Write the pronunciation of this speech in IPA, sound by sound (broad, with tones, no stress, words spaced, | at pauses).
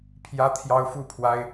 pʰjä˦t̪ʰjɑ˦ʊ̯fu˥˨pʰwa˦ɪ̯